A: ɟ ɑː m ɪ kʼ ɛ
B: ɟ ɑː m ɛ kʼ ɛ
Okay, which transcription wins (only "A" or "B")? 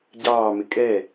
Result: A